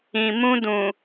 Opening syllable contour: low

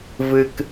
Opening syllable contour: low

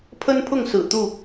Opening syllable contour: high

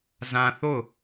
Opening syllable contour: high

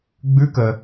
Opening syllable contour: rising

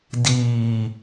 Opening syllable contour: low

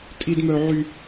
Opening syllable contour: high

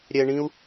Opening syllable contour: low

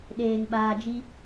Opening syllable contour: low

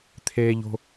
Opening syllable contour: high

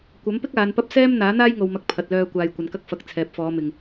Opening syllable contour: rising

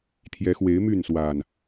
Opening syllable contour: rising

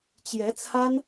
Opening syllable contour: rising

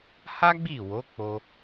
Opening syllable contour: high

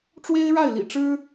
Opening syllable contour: high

